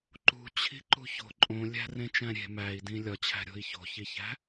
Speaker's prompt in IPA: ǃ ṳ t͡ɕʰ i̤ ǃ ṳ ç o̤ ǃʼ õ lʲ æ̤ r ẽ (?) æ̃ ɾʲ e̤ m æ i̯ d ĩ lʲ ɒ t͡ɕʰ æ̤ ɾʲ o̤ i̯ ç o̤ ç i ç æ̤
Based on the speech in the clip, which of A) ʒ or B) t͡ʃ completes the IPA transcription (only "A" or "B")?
B